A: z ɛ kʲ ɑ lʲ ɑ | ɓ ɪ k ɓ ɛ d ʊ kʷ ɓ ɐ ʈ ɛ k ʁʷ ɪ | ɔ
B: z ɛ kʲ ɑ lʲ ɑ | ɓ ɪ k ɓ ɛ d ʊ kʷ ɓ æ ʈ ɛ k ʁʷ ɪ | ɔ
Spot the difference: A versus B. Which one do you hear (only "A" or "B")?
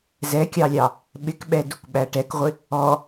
B